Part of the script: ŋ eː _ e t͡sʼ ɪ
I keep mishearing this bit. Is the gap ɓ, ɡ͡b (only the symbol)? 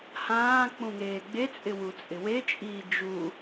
ɡ͡b